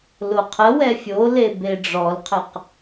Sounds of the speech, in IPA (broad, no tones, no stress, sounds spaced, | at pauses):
l o qʰ ə w ɛ fʲ o l e b e ɖ͡ʐ ɔ l qʰ ɘ q